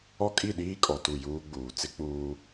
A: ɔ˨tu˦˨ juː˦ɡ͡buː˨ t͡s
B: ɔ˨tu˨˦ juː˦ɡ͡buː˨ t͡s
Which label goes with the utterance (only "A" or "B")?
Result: A